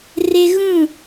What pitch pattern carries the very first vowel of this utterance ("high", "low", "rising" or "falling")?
high